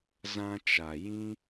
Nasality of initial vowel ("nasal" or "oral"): nasal